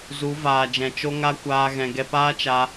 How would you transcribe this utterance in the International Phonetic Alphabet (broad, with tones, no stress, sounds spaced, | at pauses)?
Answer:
z u˨˦ v aː˨ d͡ʒ ɛ̃˨ t͡ʃ o˦ ŋ a˦ kʷ aː˧ ɣ ɛ̃˧ ɡ ɛ˦ p aː˦ t͡ʃ a˦